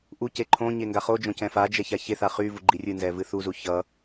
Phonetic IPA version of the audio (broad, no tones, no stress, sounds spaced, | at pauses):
ʔ u c e ǃʰ õ ɲ e ŋ ɡ a χ o d͡ʒ õ c ɛ̃ f a d͡ʒ ɛ ç a ç e θ a χ y v u ɡ͡ǃ i rʲ ɨ n z ɛ v ɨ θ u z u ç ʌ